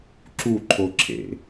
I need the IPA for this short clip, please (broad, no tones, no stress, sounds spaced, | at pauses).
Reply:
ǁ u ǃʰ o ǁʰ ḛ